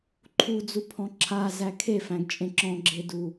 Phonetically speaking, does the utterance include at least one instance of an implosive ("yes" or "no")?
no